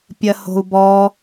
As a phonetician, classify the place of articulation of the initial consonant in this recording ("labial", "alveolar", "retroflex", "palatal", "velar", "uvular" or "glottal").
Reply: labial